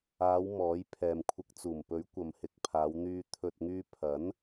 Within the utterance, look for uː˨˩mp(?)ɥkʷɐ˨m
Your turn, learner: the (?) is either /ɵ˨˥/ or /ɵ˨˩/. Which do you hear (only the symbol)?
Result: ɵ˨˥